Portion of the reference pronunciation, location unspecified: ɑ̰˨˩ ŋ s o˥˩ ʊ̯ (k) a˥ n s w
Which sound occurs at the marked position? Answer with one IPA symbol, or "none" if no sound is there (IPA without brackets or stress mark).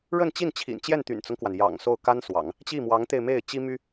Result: k